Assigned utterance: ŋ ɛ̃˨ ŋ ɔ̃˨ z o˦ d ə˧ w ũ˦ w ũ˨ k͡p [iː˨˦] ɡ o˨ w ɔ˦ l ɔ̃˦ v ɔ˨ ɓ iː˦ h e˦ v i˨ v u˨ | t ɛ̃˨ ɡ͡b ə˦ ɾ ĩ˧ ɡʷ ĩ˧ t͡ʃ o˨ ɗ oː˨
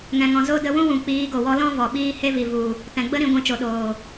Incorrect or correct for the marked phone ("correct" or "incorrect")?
correct